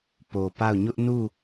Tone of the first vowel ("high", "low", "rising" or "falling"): low